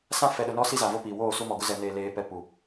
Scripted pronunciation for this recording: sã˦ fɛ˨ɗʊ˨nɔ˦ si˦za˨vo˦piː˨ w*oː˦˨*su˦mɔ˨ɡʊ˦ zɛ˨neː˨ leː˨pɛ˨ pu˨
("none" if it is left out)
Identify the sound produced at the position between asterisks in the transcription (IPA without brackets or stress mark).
oː˦˨